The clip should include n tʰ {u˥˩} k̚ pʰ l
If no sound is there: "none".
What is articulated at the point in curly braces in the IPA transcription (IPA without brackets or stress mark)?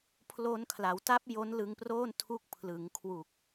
u˦˥